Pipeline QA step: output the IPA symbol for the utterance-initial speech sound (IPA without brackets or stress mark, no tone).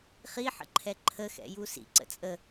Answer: χ